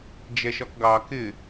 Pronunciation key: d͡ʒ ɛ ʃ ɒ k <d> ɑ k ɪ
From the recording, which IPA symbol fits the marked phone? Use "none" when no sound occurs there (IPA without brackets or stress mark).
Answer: ɡ